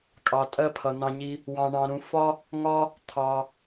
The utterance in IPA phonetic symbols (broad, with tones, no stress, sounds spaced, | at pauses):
kʼ ɑ˧ tʼ ɜ˥ pʰ ʌ˧ n̪ ɑ̃˥ ɲ i˥ | w ɑ̃˧ ɳ ɑ̃˧ ɾ ũ˧ f ɒ˥ | ŋ ɒ˥ | t̪ʰ ɑ˧